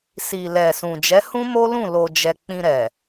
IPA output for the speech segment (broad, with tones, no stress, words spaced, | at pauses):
si˨lɛ˨sũ˨ d͡ʒɛ˨˦hũ˦mo˦lũ˦˨ lo˧d͡ʒɛ˧ k͡pĩ˧ɾɛ˨